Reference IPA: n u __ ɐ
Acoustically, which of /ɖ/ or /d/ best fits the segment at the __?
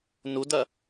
d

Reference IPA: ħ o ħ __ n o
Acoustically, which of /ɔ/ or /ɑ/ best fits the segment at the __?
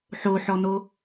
ɔ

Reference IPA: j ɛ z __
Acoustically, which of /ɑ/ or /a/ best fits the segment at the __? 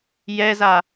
a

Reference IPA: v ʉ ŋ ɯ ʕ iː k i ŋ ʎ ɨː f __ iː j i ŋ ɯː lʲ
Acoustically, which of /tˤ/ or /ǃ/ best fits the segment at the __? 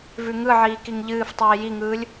tˤ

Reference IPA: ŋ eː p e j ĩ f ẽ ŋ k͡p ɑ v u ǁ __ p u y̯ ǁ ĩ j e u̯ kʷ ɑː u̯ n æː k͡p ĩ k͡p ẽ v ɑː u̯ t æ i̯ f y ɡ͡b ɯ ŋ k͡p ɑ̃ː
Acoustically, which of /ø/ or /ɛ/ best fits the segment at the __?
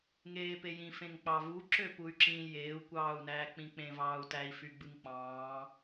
ø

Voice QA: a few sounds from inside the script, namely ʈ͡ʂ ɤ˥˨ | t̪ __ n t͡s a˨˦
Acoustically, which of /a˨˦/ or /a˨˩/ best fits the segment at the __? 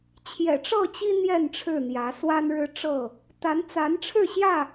a˨˦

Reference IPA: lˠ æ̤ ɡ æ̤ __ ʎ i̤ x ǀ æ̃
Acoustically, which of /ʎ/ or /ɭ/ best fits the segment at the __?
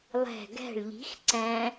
ɭ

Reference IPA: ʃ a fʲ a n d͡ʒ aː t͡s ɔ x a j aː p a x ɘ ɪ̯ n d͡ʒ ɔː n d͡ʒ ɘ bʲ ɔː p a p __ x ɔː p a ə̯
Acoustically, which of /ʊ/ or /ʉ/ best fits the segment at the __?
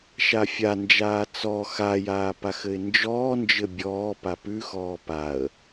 ʉ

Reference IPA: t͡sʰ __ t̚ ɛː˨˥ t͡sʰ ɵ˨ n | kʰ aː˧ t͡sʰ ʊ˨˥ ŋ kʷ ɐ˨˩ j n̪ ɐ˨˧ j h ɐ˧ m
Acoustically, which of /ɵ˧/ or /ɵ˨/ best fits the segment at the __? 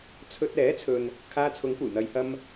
ɵ˧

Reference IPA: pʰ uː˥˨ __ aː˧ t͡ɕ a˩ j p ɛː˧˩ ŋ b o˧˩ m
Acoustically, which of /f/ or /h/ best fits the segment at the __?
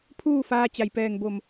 f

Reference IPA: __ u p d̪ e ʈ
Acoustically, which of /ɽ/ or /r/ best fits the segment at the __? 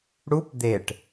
ɽ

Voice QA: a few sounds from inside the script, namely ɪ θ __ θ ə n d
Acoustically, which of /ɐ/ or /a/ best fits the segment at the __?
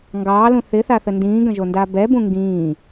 a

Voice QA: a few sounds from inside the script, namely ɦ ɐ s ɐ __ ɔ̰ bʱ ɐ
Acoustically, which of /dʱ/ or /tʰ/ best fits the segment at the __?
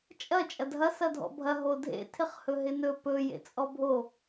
dʱ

